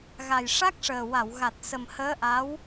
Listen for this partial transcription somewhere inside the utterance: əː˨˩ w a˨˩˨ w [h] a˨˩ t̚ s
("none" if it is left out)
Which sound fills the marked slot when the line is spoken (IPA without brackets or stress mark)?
ɣ